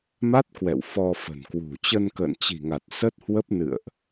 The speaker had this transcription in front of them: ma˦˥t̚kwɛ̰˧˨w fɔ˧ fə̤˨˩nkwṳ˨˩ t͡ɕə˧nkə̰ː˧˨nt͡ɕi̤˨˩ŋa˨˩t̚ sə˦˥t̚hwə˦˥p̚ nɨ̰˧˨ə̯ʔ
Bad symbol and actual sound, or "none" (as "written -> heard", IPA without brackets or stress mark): none